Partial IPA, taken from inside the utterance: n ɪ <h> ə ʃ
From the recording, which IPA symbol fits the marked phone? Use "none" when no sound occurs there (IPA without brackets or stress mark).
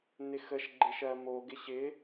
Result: x